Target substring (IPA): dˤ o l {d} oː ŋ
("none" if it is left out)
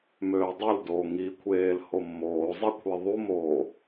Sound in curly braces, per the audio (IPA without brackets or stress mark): d